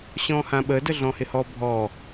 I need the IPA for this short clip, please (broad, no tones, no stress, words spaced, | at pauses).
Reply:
ɕɔ̃hãɓədə ɮɔ̃hɪhɔ bʱɔ